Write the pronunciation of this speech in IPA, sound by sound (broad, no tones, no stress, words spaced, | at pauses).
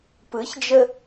pɯçd͡ʒə